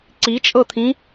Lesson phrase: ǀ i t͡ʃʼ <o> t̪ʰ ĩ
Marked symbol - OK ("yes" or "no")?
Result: no